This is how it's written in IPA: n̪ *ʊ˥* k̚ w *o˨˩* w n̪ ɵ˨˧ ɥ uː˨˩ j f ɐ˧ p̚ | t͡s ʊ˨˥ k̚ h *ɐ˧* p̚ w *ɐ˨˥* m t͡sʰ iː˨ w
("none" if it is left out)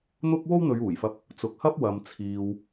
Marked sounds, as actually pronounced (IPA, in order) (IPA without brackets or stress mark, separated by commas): ʊ˥, o˥, ɐ˥, ɐ˨